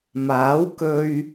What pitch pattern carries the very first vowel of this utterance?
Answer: rising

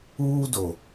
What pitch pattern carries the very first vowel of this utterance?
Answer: high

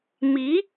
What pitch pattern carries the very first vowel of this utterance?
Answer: rising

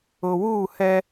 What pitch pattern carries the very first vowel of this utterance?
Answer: low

